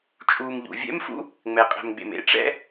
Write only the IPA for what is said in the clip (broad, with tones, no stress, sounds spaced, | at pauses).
t͡ʃʼ uː˨ m ʎ ṵ˨ vʲ ɛ̰˥ m f ṵ˥ | ŋ͡m ɛ˨ qʼ ɛ̤˨ m ɡ͡b ḛ˨ m ḛ˥ ʈ͡ʂ ɛ̰˥